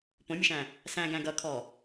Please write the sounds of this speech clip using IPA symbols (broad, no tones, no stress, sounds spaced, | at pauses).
p õ mʲ ə ʃ æ̃ | s æ̃ ɡ æ̃ ɡ ʌ kʰ ɔ